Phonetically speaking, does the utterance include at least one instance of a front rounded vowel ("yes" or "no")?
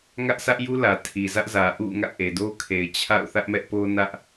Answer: no